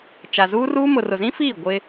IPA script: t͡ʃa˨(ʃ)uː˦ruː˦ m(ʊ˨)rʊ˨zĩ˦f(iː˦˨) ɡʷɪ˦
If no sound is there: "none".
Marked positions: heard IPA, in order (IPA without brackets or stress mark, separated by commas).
z, ʊ˨, iː˦˨